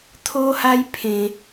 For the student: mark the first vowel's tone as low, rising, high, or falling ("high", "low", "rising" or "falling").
high